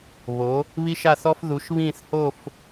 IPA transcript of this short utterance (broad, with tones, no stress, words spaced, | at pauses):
βo˨˥ | βi˥ʃa˥˧θɔ˥f ðu˨˥ʃ βĩː˥˧θho˥˧f